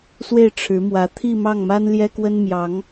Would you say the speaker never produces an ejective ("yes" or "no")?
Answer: yes